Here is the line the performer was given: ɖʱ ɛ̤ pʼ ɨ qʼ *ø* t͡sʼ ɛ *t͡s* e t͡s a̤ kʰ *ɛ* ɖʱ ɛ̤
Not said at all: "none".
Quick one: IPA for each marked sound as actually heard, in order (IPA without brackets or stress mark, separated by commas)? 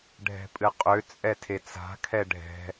ø, tʰ, ɛ